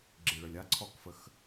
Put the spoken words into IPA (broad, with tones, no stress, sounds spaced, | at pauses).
ɡ͡ǁ i˨ ɭ ə˨ lʲ a˦ ǀʰ ɔ˧ k f ə˧ x